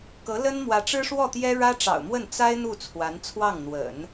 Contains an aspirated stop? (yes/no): yes